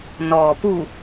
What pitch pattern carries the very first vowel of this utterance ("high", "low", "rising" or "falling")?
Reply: low